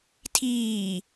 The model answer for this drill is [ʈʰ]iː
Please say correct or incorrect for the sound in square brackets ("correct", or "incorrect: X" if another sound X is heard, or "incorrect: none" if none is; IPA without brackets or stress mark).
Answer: incorrect: tʰ